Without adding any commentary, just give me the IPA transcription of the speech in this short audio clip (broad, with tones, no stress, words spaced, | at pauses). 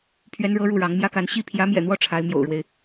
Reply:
pʰɥɛ˥nɻɤ˥ɻu˥˩ɻɑ˧˥ŋ mjä˥ka˧˥n ɕi˥˩ pʰjä˧˥mjɛ̰˨˩n̪wɔ˥˩ ʈ͡ʂʰa˧˥ɪ̯mjo̰˨˩ʊ̯ɻwe˦ɪ̯